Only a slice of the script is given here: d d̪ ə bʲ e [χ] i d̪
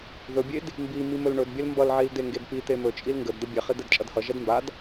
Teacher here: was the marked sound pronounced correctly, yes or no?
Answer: yes